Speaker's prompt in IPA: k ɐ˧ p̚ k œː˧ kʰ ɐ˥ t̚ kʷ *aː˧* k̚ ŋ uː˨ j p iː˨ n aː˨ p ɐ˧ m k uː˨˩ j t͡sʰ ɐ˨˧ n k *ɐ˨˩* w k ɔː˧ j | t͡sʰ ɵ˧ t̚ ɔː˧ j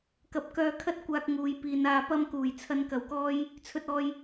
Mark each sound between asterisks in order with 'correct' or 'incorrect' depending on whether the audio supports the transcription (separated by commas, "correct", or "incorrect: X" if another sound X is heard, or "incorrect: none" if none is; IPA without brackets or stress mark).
correct, correct